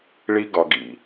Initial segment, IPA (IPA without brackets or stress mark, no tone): ɭ